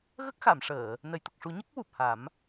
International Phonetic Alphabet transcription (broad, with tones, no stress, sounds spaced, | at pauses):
ɣ ə˦˥ k̚ x a˨˩˨ m ʂ əː˨˩˨ | n ə˨˩˨ j t̪ ə˨˩ k̚ ʂ u˨˩˦ ɲ ə˦˥ k̚ w u˨˩ p̚ h a˨˩˦ m